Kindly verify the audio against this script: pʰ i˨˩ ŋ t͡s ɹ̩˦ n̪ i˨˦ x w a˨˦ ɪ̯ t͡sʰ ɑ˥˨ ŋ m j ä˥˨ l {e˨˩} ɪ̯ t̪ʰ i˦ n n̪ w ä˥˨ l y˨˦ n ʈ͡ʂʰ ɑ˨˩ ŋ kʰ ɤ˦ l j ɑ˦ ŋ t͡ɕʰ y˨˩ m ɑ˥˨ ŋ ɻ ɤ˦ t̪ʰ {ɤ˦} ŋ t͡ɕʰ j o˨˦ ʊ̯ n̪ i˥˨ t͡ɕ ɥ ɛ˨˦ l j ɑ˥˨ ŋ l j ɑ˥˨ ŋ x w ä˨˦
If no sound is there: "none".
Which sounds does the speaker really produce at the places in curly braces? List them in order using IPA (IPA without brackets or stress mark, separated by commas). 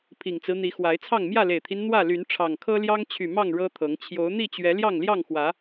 e˨˩, ɤ˨˦